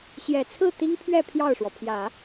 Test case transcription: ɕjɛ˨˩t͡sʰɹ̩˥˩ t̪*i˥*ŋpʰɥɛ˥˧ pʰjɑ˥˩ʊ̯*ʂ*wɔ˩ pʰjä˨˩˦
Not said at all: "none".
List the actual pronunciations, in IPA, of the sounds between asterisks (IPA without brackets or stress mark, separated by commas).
i˥, ʂ